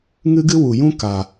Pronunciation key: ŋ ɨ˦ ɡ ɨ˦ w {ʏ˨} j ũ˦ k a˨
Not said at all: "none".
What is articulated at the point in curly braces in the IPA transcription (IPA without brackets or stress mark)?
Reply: u˨